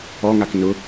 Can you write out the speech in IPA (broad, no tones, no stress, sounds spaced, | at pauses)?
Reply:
ɔ ŋ a k n ʊ